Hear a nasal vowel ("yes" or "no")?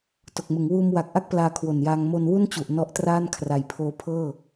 no